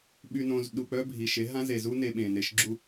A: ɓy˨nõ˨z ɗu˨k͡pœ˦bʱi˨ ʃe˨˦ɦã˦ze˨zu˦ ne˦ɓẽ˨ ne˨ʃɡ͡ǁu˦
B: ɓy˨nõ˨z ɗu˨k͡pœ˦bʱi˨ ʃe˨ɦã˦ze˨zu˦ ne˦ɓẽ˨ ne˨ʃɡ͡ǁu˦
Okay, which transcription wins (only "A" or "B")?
A